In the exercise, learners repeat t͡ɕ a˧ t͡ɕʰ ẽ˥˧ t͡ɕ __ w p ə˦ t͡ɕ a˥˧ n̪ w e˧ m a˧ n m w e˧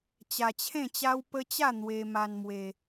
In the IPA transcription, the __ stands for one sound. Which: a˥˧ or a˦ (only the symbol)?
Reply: a˦